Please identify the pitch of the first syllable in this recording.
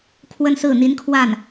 high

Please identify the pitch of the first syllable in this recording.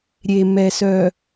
low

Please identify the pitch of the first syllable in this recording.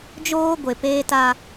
high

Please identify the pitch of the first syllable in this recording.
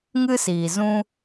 high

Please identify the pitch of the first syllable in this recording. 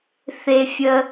high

